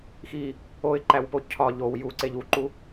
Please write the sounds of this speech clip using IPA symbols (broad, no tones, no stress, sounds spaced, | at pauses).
x i | o ɪ̯ ǃ æ w p o cʰ ɒ ʎ o w j u ǀ e ʎ u ǃ u